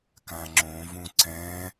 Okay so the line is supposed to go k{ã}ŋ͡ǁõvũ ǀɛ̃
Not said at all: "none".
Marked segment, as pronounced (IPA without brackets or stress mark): ã